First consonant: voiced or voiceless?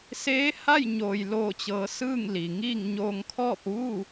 voiceless